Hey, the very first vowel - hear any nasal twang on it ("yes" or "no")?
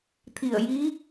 no